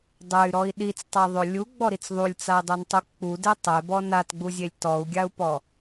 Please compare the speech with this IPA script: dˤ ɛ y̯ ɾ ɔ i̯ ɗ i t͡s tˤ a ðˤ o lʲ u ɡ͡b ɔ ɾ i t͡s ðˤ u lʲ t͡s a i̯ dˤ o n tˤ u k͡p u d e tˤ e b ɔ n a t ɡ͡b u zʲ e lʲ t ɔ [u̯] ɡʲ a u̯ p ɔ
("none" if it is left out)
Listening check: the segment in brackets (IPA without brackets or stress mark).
u̯